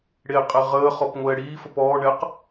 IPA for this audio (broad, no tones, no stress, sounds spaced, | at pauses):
ɽ e qʼ e ʁ əː χ ɔ p ŋʷ ɛː ɽ iː f ə p ɔː ɳ ɛ q